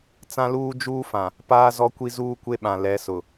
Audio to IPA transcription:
t͡s ã˦ l uː˦ d͡ʒ uː˦ f ã˨ | p aː˦ z ɔ˦ kʷ i˦ z uː˦ kʷ e˦ ɓ ã˨ l ɛ˨˦ s ʊ˨

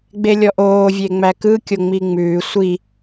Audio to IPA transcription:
ɡ͡b e lʲ ɔ ʔ oː vʲ e ŋ͡m æ k ɯ kʲ o ŋ͡m i ŋ͡m ʉː sʷ i

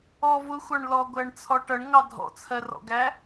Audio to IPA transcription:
ɔ v ʊ xʷ ɑ ɳ l ɔ ɡʷ æ ɳ t͡sʰ ɔ ʈ ʌ ɳ ŋ ɑ dʱ ɔ̰ t͡sʰ ɜ r ɔ̰ ɡ æ

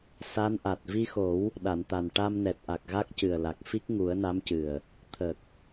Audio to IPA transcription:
s a˧˥ n ʔ a˨˩ t̚ v i˧ x o˨˩˦ w | ɗ a˨˩˨ n t̪ a˨˩ n ʈ a˧ m n ɛ˨˩ t̚ ʔ a˨˩ k̚ ɣ a˦˥ k̚ c ɨ˨˩ ə̯ l a˨˩ k̚ f i˦˥ k̚ ŋ u˨˩˦ ə̯ n a˧˥ m c ɨ˨˩ ə̯ | t̪ʰ ə˨˩ k̚

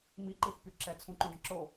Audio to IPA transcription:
m i ǃ i θ p y ǁ ɛ t͡sʰ ũ ǃ õ ɖ ə̃ ǁ o

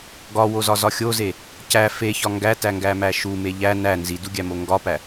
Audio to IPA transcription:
ɡ ɒ w o z ɒ z ɒ xʲ o z e | c æ f e ç ɒ ŋ ɡ æ t æ ŋ ɡ æ m æ ʃ u m e ʎ æ n æ n z i d u ɡʲ æ m o ŋ ɡ ɒ p æ

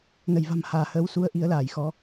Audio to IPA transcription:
n ə˧˩ j v a̤˨˩ m h aː˧˩ h əː˨˦ w s u˧ ə̯ ʔ i˧ ə̯ l aː˧˩ j x ɔ˨˦

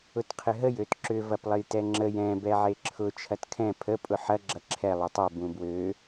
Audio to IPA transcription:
ʊ t qʰ ɪ ɦ ə j ø t ǁ ʏ v ɐ p lˠ ə j t ɛ ŋ͡ǁ ə j ɛ̃ b ɛ ʕ e ǁʰ ʊ t͡ʃʰ ɐ t kʰ ɛ̃ pʰ ə pʼ ʊ ħ ɐ ɡ͡ǁ ɐ ǁʰ ɛ lˠ e tˤ ø b ũ b w ø

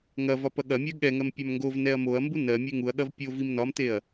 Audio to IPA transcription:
ŋ ɐ v ɒ p ɐ ɠ ɐ mʲ ɜ ɠ ɛ ŋ ɜ m pʲ a m ŋ ɡ o v n ɛ ɐ̯ m o ɐ̯ m b u n ɜ mʲ ɛ ŋ u ɐ̯ ɠ ɐ v pʲ o v i m n ɒ m t e ɐ̯

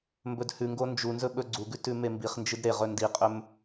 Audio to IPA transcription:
m b ɵ d h ʉ ŋ ɡ o n d͡ʒ u n z ɵ ɓ ɵ ɡ͡ǀ u ɡ ʉ t ʉ m e m b i χ n d͡ʒ ɨ d ɾ e ʁ ɵ n d i qʼ ɵ m

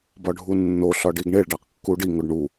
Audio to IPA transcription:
b ɒ ɖʱ u nː o ɬ ɒ ɖ i ɡ ɳ e ɭ ɖ æ q kː u ɖ i ŋ o ɖ ɳ u

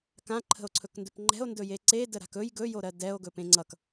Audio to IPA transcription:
k ã ǃʰ ə̤ o̯ ǀʰ ɵ k n d ɵ p ŋ͡ǃ ɛ̤ o̯ n d ɵ j e ǀ e d ə ɾ a̤ k ɵ j ɡ ɵ j o ɾ ɜ d ɛ o̯ ɡ ɵ p ẽ ŋ͡ǀ ʌ k

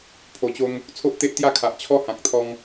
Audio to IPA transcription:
pʰ o˨˩ t͡ɕ o˧ ŋ | t͡sʰ o˦ ʔ t̪ e˦ ʔ t̪ j a˥˧ kʰ a˨ ʔ t͡ɕʰ ɔ˦ h ã˨ k̚ t̪ʰ ɔ˧ ŋ

